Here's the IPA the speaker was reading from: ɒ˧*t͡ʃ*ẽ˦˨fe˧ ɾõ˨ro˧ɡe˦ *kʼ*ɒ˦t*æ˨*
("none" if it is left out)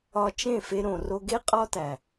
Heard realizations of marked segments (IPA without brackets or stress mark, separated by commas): t͡ʃ, qʼ, æ˨